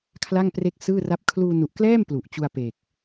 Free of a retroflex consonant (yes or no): yes